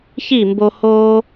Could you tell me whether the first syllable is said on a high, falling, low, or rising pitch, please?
falling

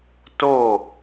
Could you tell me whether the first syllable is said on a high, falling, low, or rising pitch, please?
falling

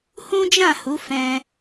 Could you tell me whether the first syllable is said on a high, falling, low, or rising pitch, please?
high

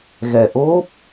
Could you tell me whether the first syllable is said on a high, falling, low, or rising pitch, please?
low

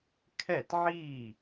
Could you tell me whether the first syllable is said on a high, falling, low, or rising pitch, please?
falling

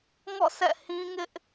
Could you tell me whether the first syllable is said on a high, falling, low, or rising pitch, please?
falling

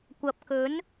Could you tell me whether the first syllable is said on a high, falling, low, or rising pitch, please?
low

